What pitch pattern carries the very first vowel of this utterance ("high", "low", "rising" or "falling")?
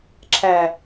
low